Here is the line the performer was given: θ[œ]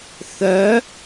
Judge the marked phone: correct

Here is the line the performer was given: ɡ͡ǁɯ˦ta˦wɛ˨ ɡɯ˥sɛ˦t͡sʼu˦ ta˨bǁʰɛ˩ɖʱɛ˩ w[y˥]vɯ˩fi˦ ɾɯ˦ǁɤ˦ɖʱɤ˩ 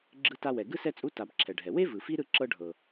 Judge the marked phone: incorrect: e˥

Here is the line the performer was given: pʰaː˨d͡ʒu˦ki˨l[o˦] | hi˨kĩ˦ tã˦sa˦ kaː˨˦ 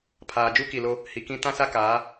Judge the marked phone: correct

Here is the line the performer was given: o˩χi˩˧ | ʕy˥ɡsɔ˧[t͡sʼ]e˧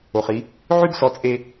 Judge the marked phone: correct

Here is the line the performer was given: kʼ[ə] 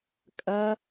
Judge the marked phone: incorrect: ɐ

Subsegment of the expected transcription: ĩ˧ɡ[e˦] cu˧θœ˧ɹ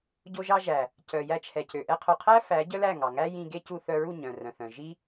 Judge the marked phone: correct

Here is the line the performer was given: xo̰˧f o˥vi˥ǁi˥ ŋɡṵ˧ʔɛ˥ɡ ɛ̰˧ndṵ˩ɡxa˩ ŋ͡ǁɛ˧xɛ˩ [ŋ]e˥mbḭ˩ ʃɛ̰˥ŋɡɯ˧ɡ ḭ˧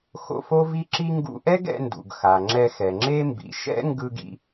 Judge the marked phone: incorrect: ŋ͡ǁ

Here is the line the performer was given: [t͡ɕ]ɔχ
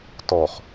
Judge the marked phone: incorrect: t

